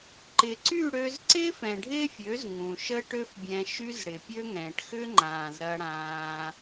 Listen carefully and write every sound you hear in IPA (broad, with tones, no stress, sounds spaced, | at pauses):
ǃ ɪ˨ ǀ y˦˨ ɽ ø˧ z ǀ ɪː˦ f ɛ̃˨ ɖʱ ɪː˦ fʲ ø˨˦ z ŋ ũ˨ ʃ ə˦ ʈ ø˦ f bʲ ɛ̃˧ ʃ y˦ z ɽ ɪ˨ pʲ ø˦ ŋ ɛ̃ː˨ ʈ x ʏ˦ ŋ͡ǃ ãː˨ z ɾ ɐ˧ ɽ ãː˧